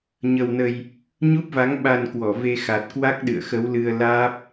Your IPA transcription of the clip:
ɲ ə˧ w n ə˧ j | ɲ u˦˥ p̚ v a˨˦ ŋ ɓ a˧ n k w ɔ˧˩ v e˧ x a˨˩ t̚ k w a˦˥ k̚ ɗ ɨ̰˧˨ ə̯ x ə˨˦ w l ɨ˧ ə̯ l aː˦˥ p̚

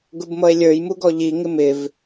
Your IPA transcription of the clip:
ɡ ʊ b m ʌ e̯ lʲ ə˞ j m u ɡ ɔ ʎ i ŋ ɪ m ɪ v

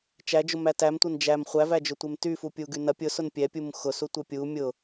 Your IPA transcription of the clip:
t͡ʃ æ d͡ʒ ʊ m æ t æ m tʷ ɐ n d͡ʒ æ m χʷ æ v æ d͡ʒ ʊ tʷ e m t y f u pʲ u ɡ y n ɐ pʲ ʊ s ʊ n pʲ ɛ pʲ u m x ʊ s u tʷ ɛ pʲ u mʲ ʊ

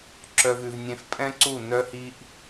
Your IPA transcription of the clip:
ǁ œ˨ v ʉ˨ v nʲ ẽ˧ f pʼ ɛ̃˦ ǀ u˦˨ n œ˦ h i˦ ʔ

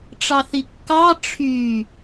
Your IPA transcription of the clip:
ʈ͡ʂ ɑ θ i kː ɑ ʈ͡ʂʰ y

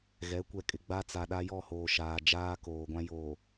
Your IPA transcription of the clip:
ɣ ɛ˨˦ kʷ ɛ˨ kʼ ɪ˨ ɡ͡b a˦ t͡s a˨ ɗ a˦ j ɔ˦˨ h oː˨ ʃ aː˨ d͡ʒ aː˦ k oː˨ ɡʷ ã˦ j oː˨

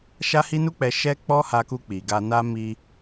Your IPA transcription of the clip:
ʃ a˦ h i˦ n u˦ k͡p ɛ˧ ʃ ɛ˦ k͡p ɔ˦ h a˧ k u˧ k͡p i˨ ɡ a˧ n a˦ m i˧

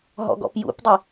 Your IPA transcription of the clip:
ɦ ɔ̰ ɡ ɔ̰ p j ṵ p dˤ i

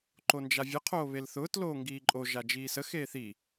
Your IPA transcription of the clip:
ǃ o n d͡ʒ a vʲ ə qʰ oː β e l θ ʊː t l oː ŋ ɡ iː ǃʼ o ʒ a d͡ʒ iː s ə x eː θ i

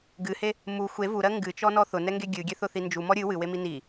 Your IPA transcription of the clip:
ɡ ɨ h e | m u xʷ e v u ɾ ɜ ŋ ɡ ɨ t͡ʃ ɔ n ɔ θ ʊ n ɛ ŋ ɡ e ɡʲ ɨ ɡʲ ɛ θ ʊ θ i n d͡ʒ u m ɔ ɾʲ ɨ w ɨ w e m i n i

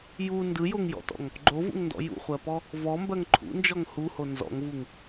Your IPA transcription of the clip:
j u n d ɯ j o ŋ j ɔ̰ t ɔ̰ ŋ | ɡ͡ǃ o v ṵ ŋ n d ɔ̰ j ṵ χʷ ɜ p ɔ | v ɔ m b ɜ ŋ ǃʰ ṵ n d͡ʒ ɔ ŋ h u h o n z ɔ̰ ŋ v u ŋ

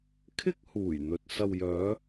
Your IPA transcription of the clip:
kʰ ɪ˥ k̚ h uː˨˩ j n̪ ɵ˨ t̚ s ɐ˨ w j œː˨˧

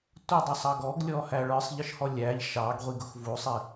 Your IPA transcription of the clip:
tʷ ə dˤ u sˤ ɑ ɡ ɔ ɡ lʲ ɔ h æ ɭ ə˞ sˤ ʎ ə ʃ h ɔ lʲ æ ʎ ʃ ɑ ɡ ʁʷ i ɡ ʊ x v u sˤ i

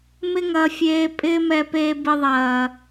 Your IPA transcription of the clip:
m ɪ˦ ŋ ɐː˧ fʲ eː˧ pʼ ɪː˦ m ɛ˧ p eː˧ b ɪ˧ ðˤ ɐː˨

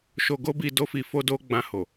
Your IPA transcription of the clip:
ʃ o˧ ɡ o˦ b i˧ d o˦ f i˧ f o˦ d o˦ ɡ͡b ã˧ h o˨

